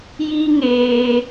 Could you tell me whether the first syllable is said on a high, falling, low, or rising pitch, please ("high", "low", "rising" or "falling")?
high